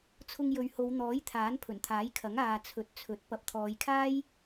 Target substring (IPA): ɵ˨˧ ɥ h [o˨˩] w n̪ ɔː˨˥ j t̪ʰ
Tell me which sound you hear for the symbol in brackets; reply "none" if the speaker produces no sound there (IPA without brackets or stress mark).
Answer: o˨˧